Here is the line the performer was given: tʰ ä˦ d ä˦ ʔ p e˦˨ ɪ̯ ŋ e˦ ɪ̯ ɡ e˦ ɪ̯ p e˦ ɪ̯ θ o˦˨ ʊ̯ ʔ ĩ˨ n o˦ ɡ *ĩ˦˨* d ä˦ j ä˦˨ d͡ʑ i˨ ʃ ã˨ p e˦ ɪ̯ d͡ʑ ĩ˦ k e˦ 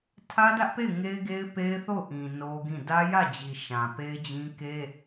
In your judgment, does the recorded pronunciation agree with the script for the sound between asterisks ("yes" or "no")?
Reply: yes